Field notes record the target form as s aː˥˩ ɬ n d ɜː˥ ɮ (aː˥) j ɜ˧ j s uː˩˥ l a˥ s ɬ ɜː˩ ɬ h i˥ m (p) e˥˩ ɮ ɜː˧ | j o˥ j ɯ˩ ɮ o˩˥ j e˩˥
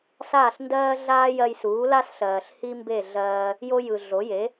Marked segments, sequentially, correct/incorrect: correct, incorrect: b

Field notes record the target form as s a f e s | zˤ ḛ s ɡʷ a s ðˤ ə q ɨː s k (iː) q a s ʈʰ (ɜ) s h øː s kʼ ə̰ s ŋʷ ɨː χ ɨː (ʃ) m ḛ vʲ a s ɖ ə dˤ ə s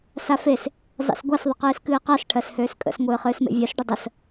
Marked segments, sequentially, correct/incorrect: incorrect: ɨː, correct, incorrect: s

